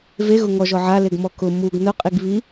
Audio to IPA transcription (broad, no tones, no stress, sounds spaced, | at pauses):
v e ɣ ʊ ŋ ɔ ʒ ɔ ʕ a l e ɡ m ɔ k ʊ m u ɡ n ʊ qʼ i ɡ β i